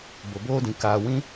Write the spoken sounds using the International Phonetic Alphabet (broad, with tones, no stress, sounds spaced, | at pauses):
b o˨ b oː˦ d ĩ˨ k aː˨ w ĩ˦